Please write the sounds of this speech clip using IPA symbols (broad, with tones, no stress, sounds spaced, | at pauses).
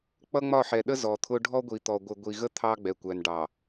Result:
k͡p ʌ˦ ŋ͡m ɒ˦˨ ħ ɛ˨ ɗ ə˦ z ɔ˨ t̪ʰ ʊ˦ ɖʱ ɔ˦ ɡʷ i˨ t̪ ɔ˨ ɡʷ ɪ˨ ɡʷ i˨ ɣ ə˦ t̪ʰ ɑ˦ ɡ͡b ɛ˨ kʷ æ˨ n ɖ ɑ˨